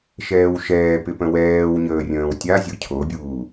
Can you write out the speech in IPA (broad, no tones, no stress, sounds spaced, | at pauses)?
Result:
ʃ ɛː w ʃ ɛː p ɪ p ə̃ w ɛː w ɲ əː rʲ ə̃ː w tʲ a zʲ o cʰ o bʲ uː